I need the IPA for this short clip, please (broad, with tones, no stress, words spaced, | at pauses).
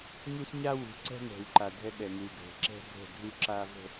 ɲu˦sɲa˦ wṳ˨ǀɛ̤˦ŋɛ̤˨w ǃa˨ dʱɛ˦ɓɛ˨ŋu˨ɡʱɛ̤˨ ǁɛ̤˦bʱə̤˦˨dʱu˦ ǁa˨və̤˨